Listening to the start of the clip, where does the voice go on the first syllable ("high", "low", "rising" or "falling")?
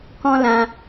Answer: high